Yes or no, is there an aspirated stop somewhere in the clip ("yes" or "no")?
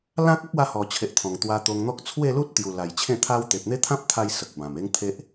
yes